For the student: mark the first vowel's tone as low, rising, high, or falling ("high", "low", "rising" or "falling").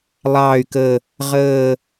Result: low